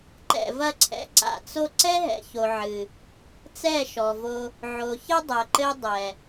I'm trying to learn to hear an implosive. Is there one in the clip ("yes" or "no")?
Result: no